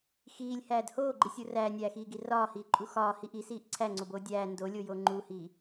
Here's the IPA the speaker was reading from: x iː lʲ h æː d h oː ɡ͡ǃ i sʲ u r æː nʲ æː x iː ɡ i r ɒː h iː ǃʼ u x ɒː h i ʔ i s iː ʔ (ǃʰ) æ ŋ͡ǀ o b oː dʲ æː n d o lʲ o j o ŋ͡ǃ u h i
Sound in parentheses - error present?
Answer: yes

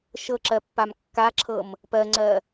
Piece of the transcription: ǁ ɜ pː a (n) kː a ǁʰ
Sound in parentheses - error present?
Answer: yes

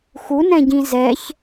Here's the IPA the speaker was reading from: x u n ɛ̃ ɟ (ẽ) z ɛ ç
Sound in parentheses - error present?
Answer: yes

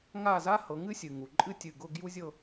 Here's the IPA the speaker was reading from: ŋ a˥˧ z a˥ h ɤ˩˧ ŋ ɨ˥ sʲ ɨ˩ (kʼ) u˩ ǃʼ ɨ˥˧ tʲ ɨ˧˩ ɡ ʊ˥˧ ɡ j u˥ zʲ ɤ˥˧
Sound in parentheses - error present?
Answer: yes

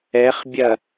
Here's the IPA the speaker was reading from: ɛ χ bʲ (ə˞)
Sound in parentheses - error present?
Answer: yes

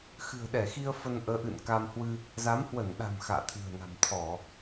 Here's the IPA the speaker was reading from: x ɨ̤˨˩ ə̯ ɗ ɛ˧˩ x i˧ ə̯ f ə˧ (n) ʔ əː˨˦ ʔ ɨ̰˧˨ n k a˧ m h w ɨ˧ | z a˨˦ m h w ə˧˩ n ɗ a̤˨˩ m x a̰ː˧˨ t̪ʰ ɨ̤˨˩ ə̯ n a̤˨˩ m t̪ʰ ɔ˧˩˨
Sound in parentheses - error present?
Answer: no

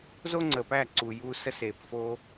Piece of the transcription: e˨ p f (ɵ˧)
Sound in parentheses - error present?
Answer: yes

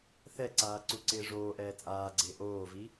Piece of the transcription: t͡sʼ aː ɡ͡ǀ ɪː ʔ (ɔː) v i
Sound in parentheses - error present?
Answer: yes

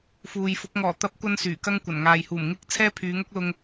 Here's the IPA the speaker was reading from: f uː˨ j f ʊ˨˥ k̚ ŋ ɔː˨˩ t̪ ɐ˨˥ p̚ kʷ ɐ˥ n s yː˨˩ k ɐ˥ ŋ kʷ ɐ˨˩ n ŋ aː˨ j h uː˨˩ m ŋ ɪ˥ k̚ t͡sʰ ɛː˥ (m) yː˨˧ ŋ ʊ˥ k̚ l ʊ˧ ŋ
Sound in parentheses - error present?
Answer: yes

